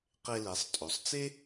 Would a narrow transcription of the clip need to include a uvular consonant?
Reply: yes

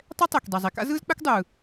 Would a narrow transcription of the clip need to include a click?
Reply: no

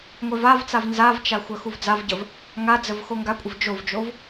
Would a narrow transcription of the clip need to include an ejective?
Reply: yes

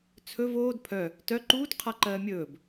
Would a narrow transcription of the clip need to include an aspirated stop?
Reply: yes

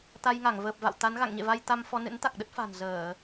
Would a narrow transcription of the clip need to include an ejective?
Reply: no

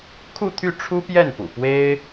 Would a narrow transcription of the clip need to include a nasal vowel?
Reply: no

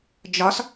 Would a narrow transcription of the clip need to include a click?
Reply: no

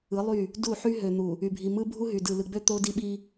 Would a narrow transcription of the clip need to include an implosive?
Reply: yes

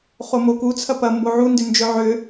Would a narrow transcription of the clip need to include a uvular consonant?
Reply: yes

